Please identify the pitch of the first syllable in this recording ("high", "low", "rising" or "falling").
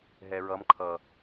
low